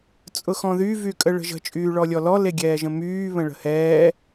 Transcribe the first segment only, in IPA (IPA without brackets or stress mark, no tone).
t͡sʼ